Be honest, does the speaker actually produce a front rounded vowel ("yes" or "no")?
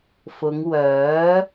yes